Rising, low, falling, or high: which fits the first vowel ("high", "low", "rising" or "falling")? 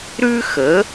high